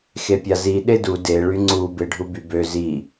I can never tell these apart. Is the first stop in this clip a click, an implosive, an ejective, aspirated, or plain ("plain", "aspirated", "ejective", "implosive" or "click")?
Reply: plain